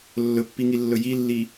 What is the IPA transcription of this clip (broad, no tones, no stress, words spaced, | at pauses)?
lːɵpːiŋilːɵ jilːi